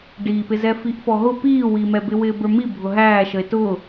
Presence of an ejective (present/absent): absent